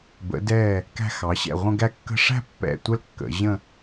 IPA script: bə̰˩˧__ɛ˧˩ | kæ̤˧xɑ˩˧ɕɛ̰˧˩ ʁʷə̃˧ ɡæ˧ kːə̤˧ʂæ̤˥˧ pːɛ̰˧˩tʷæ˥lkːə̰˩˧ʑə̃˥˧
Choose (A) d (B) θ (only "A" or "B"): A